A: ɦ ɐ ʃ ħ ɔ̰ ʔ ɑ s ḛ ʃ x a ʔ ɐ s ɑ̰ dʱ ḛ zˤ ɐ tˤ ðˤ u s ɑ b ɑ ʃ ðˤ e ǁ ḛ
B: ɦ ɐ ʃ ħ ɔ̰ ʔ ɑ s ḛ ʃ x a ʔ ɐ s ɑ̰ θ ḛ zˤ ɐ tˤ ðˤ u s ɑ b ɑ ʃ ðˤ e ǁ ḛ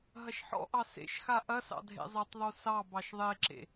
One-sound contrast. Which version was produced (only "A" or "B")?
A